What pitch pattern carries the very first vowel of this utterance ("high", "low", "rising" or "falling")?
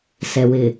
low